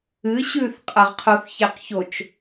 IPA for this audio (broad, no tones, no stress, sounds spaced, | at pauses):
ɨ ɕ ʉ θ qʼ ɐ ʁ qʰ o θ ç e q ç o t͡ʃ